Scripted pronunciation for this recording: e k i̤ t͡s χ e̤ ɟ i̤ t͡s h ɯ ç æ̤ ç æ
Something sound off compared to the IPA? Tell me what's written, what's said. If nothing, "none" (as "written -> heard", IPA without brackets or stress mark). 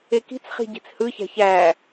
e̤ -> i̤